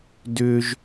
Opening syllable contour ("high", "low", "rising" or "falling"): high